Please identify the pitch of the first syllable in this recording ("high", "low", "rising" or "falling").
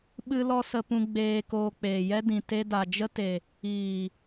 high